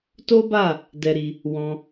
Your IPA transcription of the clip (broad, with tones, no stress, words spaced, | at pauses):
to˦ba˦˨ | dɛ˧ɾi˧ | wɔ̃˧